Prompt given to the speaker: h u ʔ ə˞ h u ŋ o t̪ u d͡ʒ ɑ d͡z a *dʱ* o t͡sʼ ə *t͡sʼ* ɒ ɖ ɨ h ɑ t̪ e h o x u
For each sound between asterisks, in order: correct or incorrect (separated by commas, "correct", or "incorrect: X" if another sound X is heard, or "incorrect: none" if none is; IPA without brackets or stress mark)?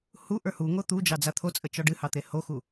incorrect: t̪ʰ, incorrect: t͡ʃ